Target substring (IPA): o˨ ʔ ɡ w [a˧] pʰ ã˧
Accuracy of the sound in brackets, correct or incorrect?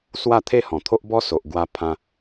correct